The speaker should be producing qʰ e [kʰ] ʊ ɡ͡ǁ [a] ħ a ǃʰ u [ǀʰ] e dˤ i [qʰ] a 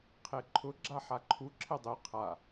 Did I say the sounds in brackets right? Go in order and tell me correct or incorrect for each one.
incorrect: ǃʰ, correct, incorrect: ǁʰ, correct

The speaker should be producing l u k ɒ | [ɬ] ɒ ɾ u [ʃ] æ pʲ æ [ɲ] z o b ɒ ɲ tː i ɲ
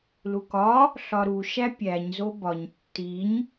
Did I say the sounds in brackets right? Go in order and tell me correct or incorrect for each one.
correct, correct, correct

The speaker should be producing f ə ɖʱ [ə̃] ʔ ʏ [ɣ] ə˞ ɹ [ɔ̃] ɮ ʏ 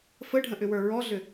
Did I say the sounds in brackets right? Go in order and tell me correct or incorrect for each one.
correct, incorrect: w, incorrect: ɔ

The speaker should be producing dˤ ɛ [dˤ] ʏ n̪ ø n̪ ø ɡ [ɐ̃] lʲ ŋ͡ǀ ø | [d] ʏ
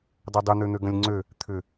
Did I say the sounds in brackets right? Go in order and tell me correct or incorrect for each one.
correct, correct, incorrect: t̪ʰ

